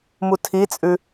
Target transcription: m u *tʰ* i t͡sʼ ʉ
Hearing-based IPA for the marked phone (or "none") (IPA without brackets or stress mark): tʰ